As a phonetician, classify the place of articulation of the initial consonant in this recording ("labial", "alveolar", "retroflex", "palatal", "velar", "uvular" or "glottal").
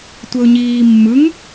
alveolar